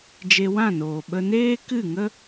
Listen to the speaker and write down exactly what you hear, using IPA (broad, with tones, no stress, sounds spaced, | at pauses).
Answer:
d͡ʒ e˧ w ã˦˨ n oː˨ ɓ ə˧ n eː˦ k ɨ˦˨ ŋ ə˦